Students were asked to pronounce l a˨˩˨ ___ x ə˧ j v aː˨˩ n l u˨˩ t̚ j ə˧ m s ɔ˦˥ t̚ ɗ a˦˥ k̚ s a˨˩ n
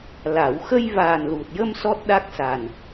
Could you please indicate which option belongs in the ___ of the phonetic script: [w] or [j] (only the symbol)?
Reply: w